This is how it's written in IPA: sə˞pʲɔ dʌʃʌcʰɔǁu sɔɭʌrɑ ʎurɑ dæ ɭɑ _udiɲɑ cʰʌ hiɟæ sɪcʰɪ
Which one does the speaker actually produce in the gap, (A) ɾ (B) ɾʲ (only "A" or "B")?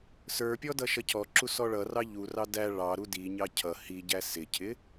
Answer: A